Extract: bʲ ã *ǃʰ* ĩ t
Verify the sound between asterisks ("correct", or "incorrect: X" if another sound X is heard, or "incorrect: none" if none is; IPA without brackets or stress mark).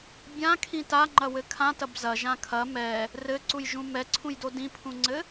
incorrect: kʰ